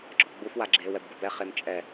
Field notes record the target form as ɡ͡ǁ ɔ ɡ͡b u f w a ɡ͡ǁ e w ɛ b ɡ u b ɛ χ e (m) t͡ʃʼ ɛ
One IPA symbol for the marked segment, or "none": m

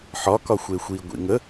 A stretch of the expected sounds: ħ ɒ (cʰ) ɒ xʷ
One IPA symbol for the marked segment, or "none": k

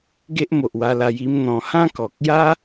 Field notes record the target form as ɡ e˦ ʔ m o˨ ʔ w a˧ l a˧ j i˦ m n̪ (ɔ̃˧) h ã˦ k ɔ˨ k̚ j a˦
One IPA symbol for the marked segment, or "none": ɔ̃˧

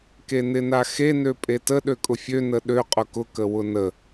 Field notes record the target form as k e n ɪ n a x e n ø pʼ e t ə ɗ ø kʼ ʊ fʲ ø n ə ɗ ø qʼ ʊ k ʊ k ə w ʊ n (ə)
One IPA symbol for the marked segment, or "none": ə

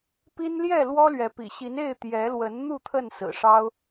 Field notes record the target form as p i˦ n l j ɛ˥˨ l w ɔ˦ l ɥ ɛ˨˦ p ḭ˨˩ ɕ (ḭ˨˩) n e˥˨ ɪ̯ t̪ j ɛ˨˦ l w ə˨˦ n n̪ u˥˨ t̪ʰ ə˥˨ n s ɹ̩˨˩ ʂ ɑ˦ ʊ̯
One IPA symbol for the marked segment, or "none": i˨˦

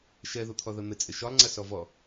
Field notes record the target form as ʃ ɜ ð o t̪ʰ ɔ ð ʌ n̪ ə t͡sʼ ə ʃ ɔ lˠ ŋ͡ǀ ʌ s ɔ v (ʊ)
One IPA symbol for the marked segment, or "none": ɔ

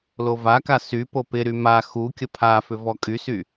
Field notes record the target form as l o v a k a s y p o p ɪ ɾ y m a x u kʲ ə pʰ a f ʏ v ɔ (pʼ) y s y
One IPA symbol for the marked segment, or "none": kʼ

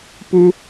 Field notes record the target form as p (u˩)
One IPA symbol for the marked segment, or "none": u˥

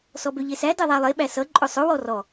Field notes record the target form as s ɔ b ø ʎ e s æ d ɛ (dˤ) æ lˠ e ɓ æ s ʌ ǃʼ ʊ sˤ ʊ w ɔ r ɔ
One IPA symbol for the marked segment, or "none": ðˤ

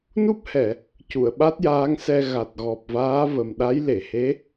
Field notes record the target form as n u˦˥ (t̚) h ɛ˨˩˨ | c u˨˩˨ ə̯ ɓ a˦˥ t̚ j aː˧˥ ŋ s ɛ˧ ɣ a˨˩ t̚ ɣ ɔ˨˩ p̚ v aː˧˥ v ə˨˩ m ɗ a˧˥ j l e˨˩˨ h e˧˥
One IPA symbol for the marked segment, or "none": p̚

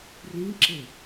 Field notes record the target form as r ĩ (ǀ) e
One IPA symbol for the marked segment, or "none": ǁ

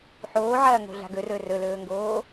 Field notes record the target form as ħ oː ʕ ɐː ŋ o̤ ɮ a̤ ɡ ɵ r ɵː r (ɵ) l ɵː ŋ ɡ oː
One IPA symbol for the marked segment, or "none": ɵ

